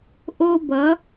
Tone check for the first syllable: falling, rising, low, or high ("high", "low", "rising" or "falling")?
high